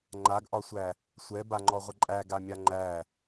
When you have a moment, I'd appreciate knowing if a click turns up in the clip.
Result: yes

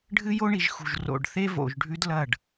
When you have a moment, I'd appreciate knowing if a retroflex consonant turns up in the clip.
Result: yes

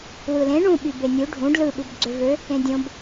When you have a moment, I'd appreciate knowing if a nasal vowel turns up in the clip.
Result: yes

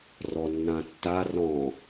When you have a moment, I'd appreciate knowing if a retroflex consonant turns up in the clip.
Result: no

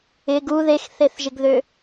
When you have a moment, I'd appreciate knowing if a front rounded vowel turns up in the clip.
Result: yes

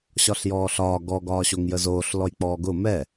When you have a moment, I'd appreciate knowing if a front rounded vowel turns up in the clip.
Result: no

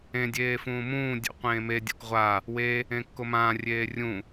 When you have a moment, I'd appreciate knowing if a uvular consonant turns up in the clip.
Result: yes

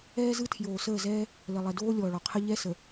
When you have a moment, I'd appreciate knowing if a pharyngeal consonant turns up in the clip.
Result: no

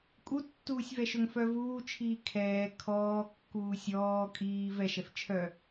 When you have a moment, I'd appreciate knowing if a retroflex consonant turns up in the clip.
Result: no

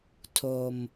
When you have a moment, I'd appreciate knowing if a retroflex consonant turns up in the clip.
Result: no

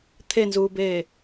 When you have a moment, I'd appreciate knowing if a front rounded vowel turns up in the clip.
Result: no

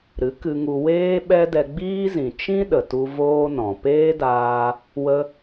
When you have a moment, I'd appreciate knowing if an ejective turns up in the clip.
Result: no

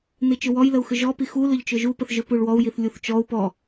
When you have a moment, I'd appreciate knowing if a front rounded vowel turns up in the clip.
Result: yes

